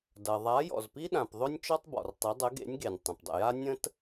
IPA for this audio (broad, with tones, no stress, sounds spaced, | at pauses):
d ɐ˩ ðˤ a˨˥ j ɔ̰˩ z p i˥ ɗ ã˩ p ðˤ ɵ˥ nʲ t͡ʃ ɔ˥ tˤ b ɔ̰˩ r tˤ i˨˥ dˤ ə˨˥ ɡ ḛ˨˥ nʲ ɡ e˩ nʲ tˤ ə̃˩ p dˤ ə̰˩ j a˥ nʲ ə̃˥ t